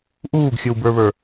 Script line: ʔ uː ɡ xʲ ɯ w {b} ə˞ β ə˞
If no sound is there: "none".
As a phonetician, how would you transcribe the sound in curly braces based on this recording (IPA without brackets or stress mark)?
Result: b